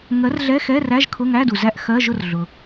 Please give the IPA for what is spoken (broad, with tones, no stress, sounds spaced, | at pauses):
ŋ ɜ˨˥ r ɮ ɛ˧˥˧ x ɛ˧˥˧ r æ˧˥˧ ʒ kʰ ʊ˧˥˧ ŋ æ˧˥˧ d u˨ z æ˥˨ ʔ x ɜ˧˥˧ ʒ ʊ˥˨ r ɮ ʊ˨